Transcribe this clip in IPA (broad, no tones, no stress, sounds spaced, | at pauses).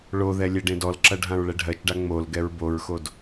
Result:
ɭ o ð ɛ lʲ ɛ ɖ ẽ d ɔ l ǁ ɐ ɖʱ ã ɹ ɭ ɛ ɖʱ ɜ t͡ʃ ɖ a ŋ͡m o l ɡ ɛ ɹ b o ɹ x o d